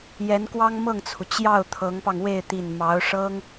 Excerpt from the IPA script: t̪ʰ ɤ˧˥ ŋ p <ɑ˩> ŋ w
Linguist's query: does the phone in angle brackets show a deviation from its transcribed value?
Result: yes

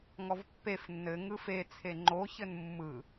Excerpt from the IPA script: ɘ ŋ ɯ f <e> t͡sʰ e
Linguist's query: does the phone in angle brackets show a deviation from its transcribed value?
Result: no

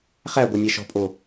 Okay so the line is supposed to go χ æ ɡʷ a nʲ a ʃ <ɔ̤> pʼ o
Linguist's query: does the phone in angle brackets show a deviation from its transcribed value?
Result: no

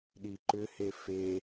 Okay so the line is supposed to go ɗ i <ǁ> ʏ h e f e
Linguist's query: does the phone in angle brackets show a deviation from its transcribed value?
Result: yes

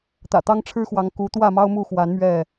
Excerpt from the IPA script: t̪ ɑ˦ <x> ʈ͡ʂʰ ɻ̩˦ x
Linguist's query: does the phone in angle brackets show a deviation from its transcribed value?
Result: yes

